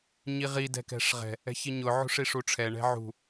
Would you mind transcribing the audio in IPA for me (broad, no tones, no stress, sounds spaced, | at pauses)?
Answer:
ɲ i ʁ i d ɛ̤ k ɛ̤ ʂ ʁ ɛ̤ | ɛ̤ ç i ɲ ʊ ʕ ṳ ʂ i ʂ u ʈ͡ʂʰ ɛ ɳ ɛ̤ ʕ ṳ